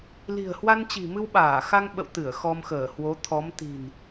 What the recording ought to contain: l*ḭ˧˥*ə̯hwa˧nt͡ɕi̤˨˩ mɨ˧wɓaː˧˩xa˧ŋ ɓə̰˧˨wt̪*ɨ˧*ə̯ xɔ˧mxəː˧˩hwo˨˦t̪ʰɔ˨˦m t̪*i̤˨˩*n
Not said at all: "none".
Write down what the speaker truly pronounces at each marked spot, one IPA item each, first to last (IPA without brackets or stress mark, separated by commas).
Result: i̤˨˩, ɨ˧˩, i̤˨˩